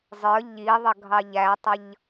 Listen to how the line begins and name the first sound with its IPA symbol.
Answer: zˤ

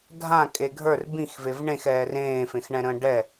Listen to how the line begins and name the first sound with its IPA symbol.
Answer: dʱ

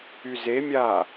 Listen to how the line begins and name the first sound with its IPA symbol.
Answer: y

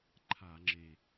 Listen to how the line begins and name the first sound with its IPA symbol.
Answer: ǃʰ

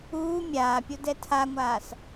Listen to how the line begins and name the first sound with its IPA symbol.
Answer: uː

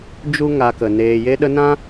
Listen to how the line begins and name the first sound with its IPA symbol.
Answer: d͡ʒ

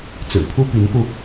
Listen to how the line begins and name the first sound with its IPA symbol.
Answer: t͡s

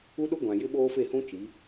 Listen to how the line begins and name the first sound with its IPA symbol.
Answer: u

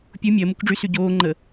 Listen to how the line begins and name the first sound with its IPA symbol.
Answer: pʲ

